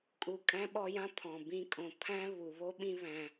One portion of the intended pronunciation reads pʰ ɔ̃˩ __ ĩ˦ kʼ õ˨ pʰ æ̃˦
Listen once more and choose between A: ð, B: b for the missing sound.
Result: B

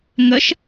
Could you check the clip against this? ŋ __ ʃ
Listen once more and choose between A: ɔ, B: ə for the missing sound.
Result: B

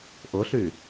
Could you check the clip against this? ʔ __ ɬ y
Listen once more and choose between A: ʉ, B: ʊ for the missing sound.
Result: B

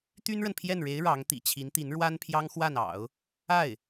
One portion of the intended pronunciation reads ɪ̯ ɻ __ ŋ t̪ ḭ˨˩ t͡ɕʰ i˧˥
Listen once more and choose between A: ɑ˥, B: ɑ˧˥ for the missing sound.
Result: B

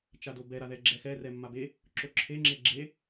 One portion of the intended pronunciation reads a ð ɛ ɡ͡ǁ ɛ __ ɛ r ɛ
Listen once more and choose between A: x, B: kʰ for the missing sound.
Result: A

